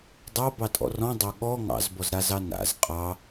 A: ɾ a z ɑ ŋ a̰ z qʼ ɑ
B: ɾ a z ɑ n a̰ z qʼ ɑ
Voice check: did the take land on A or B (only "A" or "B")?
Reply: B